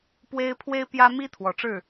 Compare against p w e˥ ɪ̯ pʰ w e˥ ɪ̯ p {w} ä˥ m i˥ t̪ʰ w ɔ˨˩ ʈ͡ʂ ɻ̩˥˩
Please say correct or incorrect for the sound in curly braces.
incorrect